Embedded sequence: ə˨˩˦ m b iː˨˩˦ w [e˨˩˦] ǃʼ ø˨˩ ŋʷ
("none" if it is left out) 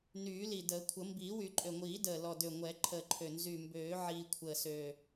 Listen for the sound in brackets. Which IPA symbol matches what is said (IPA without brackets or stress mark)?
y˨˩˦